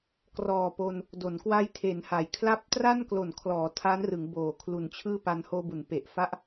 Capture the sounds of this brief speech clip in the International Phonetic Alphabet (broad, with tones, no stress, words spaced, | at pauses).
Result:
krɔː˨˩po˧n | do˩˦nkwa˦˥jtʰe˩˦nha˩˦j kʰla˦˥p̚tra˥˩n klo˨˩nkʰlɔː˩˦ tʰa˦˥nrɯ˩˦ŋ boː˨˩kʰlu˨˩n t͡ɕʰɯː˥˩pa˧n hoː˧bu˩˦npe˨˩ʔ fa˥˩ʔ